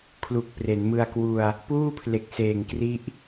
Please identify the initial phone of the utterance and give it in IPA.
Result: kʰ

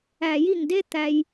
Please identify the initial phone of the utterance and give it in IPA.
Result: æ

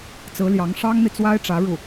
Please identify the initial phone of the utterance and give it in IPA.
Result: t͡s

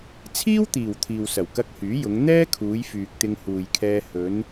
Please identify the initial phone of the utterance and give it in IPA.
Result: t͡sʰ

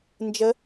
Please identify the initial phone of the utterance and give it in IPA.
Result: n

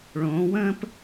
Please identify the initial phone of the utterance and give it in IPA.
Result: ɭ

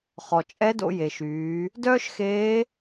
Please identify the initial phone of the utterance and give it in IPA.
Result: χ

